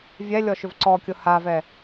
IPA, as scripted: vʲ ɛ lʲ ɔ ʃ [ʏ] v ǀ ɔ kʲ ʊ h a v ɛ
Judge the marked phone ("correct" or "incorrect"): correct